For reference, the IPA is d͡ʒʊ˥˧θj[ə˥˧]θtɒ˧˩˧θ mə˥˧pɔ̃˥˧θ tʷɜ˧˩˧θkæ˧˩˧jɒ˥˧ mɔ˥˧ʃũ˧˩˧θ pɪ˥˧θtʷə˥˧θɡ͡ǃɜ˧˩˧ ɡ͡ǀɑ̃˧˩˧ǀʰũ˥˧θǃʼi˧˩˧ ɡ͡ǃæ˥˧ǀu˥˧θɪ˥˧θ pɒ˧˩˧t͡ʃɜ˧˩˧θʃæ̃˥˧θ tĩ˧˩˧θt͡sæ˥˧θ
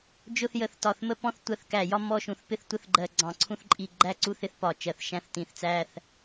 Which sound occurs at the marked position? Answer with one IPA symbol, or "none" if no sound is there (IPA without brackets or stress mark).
ə˧˩˧